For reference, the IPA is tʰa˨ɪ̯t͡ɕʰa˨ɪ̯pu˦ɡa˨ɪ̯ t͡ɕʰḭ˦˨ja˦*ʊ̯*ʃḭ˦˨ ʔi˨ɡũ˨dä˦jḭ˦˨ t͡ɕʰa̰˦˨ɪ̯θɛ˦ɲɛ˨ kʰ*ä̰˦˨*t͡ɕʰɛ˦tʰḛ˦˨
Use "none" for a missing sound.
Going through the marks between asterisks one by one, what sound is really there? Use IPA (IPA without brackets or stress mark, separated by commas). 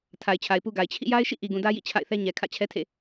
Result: ɪ̯, ä̰˦˨